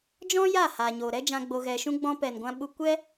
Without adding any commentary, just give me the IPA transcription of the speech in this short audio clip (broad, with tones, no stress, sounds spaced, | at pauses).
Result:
d͡ʒ ɔ̃˦ j a˦˨ h a˨ ɲ o˨ ɾ ɛ˦ d͡ʒ ã˧ ɡ͡b o˧ ɣ ɛ˧ ʃ ũ˦ ɡ͡b ɔ̃˧ p ɛ˨ n ɡʷ ã˧ ɓ u˧ kʷ ɛ˦